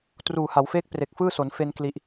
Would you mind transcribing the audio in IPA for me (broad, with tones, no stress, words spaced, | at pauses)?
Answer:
truː˨˩ ha˩˦wfeː˦˥k̚pre˨˩k̚fɯː˥˩ so˩˦nfe˧nkli˨˩ʔ